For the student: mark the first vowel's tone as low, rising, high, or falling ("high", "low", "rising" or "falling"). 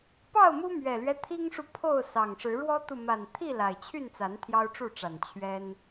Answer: falling